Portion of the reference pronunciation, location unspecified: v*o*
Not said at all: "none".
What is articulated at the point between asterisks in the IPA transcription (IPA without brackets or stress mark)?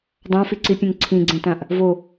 o